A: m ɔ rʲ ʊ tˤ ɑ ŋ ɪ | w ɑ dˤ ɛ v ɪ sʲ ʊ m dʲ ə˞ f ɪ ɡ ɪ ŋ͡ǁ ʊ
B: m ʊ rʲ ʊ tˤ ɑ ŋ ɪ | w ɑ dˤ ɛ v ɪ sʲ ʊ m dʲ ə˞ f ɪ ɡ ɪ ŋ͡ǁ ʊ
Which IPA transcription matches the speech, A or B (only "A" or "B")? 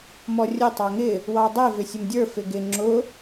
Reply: A